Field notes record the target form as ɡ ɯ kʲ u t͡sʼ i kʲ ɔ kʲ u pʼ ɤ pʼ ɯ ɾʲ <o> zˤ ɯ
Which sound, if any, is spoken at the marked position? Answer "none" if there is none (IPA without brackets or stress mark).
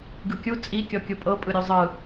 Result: o